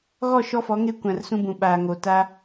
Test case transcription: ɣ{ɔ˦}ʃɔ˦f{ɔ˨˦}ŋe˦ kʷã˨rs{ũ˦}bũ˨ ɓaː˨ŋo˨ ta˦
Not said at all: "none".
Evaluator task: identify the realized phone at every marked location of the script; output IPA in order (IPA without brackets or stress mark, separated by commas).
ɔ˦˨, ɔ˨˦, ũ˦